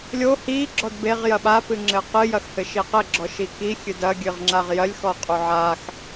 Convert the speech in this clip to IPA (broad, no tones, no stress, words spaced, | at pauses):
lʲo hi ɡ͡ǁɔdbeʁ jɐɓa pɨŋ͡ǁɘqɨ jɐxhɘʃiqɘ ɡ͡ǁɔʃiki xʲɨdɐ ɡʲɨʁŋ͡ǁaʁjɐlʲ xɔqʼuʕax